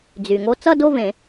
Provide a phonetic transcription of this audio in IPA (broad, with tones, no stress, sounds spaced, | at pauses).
d͡z y˩ ŋ o˧ t͡s ʌ˥˧ d o˥˧ v ẽ˨˩˦